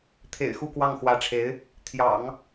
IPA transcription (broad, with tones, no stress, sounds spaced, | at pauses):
t̪ʰ ḛ˨˩ ɪ̯ x u˥˧ k w ɑ˥˩ ŋ x w ä˧˥ ʈ͡ʂʰ e˧˥ ɪ̯ | t̪ʰ j ɑ̰˨˩˦ ŋ